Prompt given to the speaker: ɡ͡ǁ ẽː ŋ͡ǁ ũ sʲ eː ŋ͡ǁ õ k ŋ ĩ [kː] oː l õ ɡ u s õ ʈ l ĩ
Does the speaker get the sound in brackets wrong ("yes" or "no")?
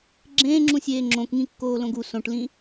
no